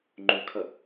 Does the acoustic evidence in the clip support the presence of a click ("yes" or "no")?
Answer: yes